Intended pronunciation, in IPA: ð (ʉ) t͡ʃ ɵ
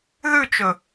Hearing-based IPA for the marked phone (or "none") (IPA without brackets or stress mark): ʉ